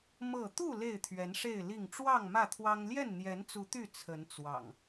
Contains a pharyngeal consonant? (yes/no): no